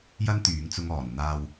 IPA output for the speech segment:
jɐ˥nt̪yː˨˥ŋt͡sʊ˧ŋɔː˨˩n n̪aː˨w

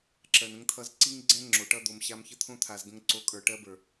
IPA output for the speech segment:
ǁɜ˨nə̃˦ŋt̪ʰʌ˦z ǀi˦ŋɡ͡ǀɛ̃˦ ŋ͡ǁo˨ʈʌ˦ d̪o˨mɕa˦mçə˦ t̪ʰõ˦t̪ʰa˨z ɡə̃˦ŋǀo˦ kʼə˞˨ʈɜ˦bə˞˨

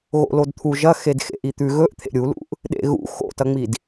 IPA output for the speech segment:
ɣo̰lodt̪ʰu ʒɐxed xḛʔit̪ʉ ɣɵʔ t̪ʰḛɾʲulṵʔ | ɗḛɣṵ xo̰tɐŋ͡mid

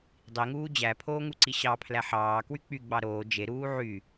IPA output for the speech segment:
dˤiŋuː d͡ʑæpʰoːŋuǀi ɕɑpʰlæ ħɑːkwy k͡pyɡ͡bɑ ɾoː d͡ʒeɾuː ʕy

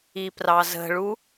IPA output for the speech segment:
iprɑzə̤ɭu

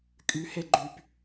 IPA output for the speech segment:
kʼy heɡ͡ǃyp

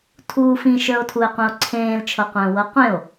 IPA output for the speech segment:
tʰuːfĩ ʃə˞o̯tʰue̯qʷĩo̯ǀʰẽːl t͡ʃʰɤqʷə̃ːwɤqʷẽo̯

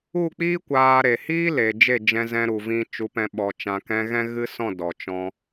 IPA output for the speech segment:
u˦˨k͡piː˦ kʷaː˧ɾe˨ hiː˦le˨ d͡ʒe˦˨d͡ʒɛ̃˧zɛ̃˧ɾu˨ vĩ˧ t͡ʃu˨˦pɛ̃˧ ɓɔ˨ t͡ʃã˨kɛ̃˧ɣɛ̃˦ ɣɨ˦sɔ̃˦˨ dɔ˨t͡ʃɔ̃˧

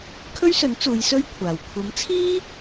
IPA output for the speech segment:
kʰɵ˥ɥsɵ˨˥n t͡suː˨˧j sɵ˥ɥkʷʰaː˨w kʷʰɐ˨˥mt͡sʰiː˥

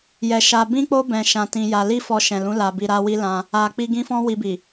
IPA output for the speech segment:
jɛ˨ ʃa˧ bĩ˦ k͡po˦ bɛ̃˧ ʃã˧tĩ˧ja˧ li˦fɔ˧ ʃɛ̃˨lũ˨˦ la˧bi˧ɾa˦wi˦ lã˧ | a˨k͡pi˧ ɡĩ˦fɔ̃˦ wi˧bi˨

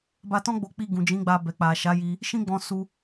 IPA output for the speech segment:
ba˧tɔ̃˦ɡ͡bo˧ k͡pi˧ ɡũ˨d͡ʒĩ˨˦ɡ͡ba˧ bɛ˨k͡pa˨ ʃa˨˦ji˧ | ʃĩ˦ɡ͡bɔ̃˧su˧

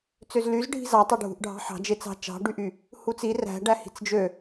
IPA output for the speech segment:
t͡søzlyz ɖʱi̤zɑtˤø ɖʱṳʔɖʱɑ̤ħɑ̤ d͡ʒet͡sɑ̤ t͡ʃɑ̤ɖyʔy | hut͡si ræ̤ ɖæhi̤t͡sd͡ʒø

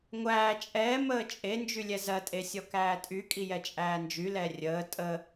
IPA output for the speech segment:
ŋʷæː t͡ʃʼɛː məːt͡ʃʼend͡ʒy lʲɛzɜtʼe sʲɔkæːtʼykʼi jɛt͡ʃʼæːnd͡ʒylɛ rʲəː tʼə

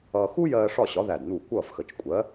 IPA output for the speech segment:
ʌː˧ xu˥jɜː˧ ʂɒ˥˨ɕɒ˨˥ðæ˧˩d n̪u˧˩ kʷʌː˥˨fxə˧˩t͡ʃkʷʼɜ˨˥

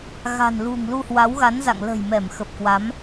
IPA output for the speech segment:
ɣa̤˨˩nlṳ˨˩ŋ lu˧hwa˨˦wɣa˨˦nza̰˧˨ŋ lə̤˨˩jmɛ˧˩m xə˨˩p̚kwa˨˦m

